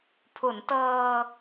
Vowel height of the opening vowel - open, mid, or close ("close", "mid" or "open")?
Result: close